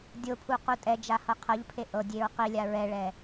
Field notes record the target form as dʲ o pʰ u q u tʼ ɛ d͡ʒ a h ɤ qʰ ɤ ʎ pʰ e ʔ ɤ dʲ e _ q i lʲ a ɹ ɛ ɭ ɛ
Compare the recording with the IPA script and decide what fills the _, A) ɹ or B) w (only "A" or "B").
A